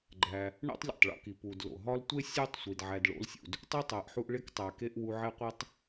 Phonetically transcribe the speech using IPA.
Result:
ɡ͡ǃ æ˩ | ɳ o̰˥ tˤ lʲ o̰˩ tˤ ɭ o̰˦ k i˩ p u˩ d l o̰˩ ɦ ɒ˦ l tʷ e˥ sʲ u˦ tˤ sʷ i˩ d ʕ æ˨ d ɭ o̰˦ l sʲ ṵ˩ d | tˤ u˥ tˤ æ˨ ʔ ħ u˦ ʔ ɭ e˥ k tˤ æ˨ k e˥ ʔ w u˦ ʕ e˥ qʷ e˥ tˤ

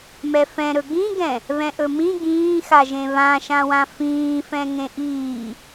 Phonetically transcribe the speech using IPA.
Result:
m ɛ f ɛ̃ ɾ ɵ ɡ ĩ ɡ ɛ̃ | β ɛ̃ ʔ ɵ m ĩ ɡ ĩː x a ʒ ẽ β ã ʃ ã w ã f ĩː f ɛ̃ ŋ ẽ ʔ iː

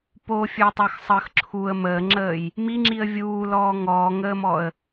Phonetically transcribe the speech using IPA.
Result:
p o fʲ ə˞ tˤ ə˞ x sˤ əː x ǁʰ u ə̯ m əː ŋ͡ǁ əː j | m i ŋ͡ǁ i ə̯ vʲ uː l ɔː ŋ ɔː ŋ əː m ɔ ə̯

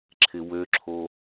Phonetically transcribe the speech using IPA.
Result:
ǁʰ ɪ w ø ǁʰ o

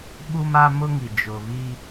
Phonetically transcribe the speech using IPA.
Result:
ɓ u˦ m a˦ m ʊ˦ ŋ i˨ d͡ʒ ʊ˨ β i˦

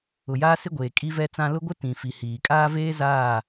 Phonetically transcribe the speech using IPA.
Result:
ʊ˨ j aː˦ s ɪ˦ ɡʷ eː˨ kʼ i˦ v ɛ˦ t͡s ã˦ l ʊ˦ ɡʷ ɪ˦ t ĩ˨ f i˨ h iː˨ kʼ aː˦ v eː˦ z aː˦˨

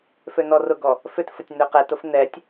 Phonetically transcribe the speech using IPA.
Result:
f ø n ɔ r ʊ ɡ ɔ | f ʏ t f ə tʲ n ø q ɛ t ʊ f n ɛ tʲ

